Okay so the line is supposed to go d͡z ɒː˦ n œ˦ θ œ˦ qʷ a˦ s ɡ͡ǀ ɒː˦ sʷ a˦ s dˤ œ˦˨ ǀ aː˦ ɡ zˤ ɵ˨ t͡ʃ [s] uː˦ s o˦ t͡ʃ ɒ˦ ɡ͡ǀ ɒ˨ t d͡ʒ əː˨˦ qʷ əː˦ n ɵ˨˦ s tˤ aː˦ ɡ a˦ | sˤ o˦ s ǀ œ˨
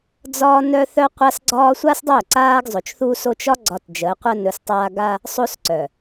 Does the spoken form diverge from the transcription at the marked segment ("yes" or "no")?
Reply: yes